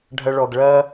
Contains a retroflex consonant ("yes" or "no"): yes